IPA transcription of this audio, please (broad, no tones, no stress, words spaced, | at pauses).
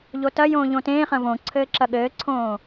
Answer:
ʎotɐjõː ʎõtẽːχɐ̃ võǀʰɘː ǁɐɠɘːǀʰõː